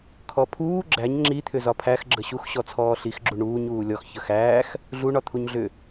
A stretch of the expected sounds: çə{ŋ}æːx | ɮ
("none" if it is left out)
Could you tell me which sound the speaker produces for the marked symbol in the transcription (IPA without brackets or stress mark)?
x